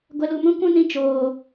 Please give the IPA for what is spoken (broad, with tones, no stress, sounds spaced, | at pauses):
ɡʷ ɛ˧ l u˧ m ũ˦ kʷ ũ˦ n ĩ˧ t͡ʃ oː˨